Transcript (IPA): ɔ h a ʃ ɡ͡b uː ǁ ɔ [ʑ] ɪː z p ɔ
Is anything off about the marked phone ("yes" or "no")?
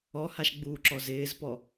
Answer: yes